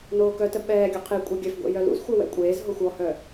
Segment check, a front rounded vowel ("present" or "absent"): present